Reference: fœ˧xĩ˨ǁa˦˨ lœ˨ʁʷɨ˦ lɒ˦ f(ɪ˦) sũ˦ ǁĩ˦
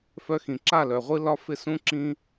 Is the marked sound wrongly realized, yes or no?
no